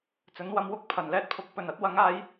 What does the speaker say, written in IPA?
t͡s ɵ˨˥ n w ɐ˧ m w ʊ˧ k̚ pʰ ɐ˨˩ n l ɛː˥ t̚ pʰ ʊ˧ k̚ p ɵ˨˩ n ɐ˨˥ t̚ w ɐ˨˥ ŋ aː˨˥ j

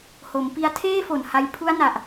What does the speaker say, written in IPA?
h o˩˦ m p i˦˥ a̯ tʰ eː˥˩ f o˨˩ n h a˧ j pʰ u˦˥ a̯ n a˨˩ ʔ

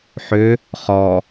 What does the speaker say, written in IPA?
ħ ø | χ ɔ

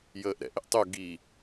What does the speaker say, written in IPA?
j əː ʔ ɾ ɛ̰ ʔ ɪ ʔ tˤ u ɡ i

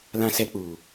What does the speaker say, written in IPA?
l ã˦ s ɛ˦ k͡p uː˨

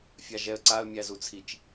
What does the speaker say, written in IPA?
fʲ a ʒ ɛ ə̯ ǀ a ə̯ mʲ æ z u t͡sʰ i t͡ʃ

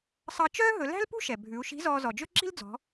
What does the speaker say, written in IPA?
sˤ ɑ˧ t͡ʃ œː˥ ɦ ɵ˩˧ l æ̤˥ l p ṳ˥ ʃ ɛ˩ bʱ ʉ˩˧ u̯ ʃ i̤˧˥ z ɔː˧ z ɔ˩ d͡ʒ ɵ˥ ǁ i̤˥ l d͡z ɔ̤˩˧

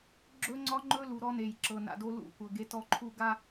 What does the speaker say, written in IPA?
ɡ͡ǁ ɵ˦ ŋ͡ǀ ɒ˦ ŋ͡ǃ ɵ˦ l u˨ ɾ ɔ˦ n e˨ j ǁ ɤ˨ n a̰˨ d o˦ l ṵ˦˨ kʷ ɤ˨ ɡ e˦ t ɔ˦ ǃʰ u˦ ɡ a˦

